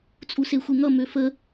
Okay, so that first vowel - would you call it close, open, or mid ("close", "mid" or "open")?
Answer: close